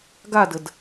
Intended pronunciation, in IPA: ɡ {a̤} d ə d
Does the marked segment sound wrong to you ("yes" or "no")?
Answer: yes